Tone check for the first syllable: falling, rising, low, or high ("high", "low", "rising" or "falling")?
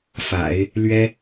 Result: low